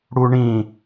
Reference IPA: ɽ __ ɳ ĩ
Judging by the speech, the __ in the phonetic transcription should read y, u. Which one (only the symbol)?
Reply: u